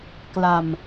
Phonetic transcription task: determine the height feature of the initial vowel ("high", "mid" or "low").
low